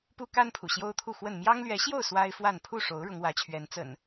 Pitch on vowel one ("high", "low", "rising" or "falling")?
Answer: high